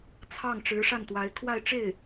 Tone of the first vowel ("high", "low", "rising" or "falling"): falling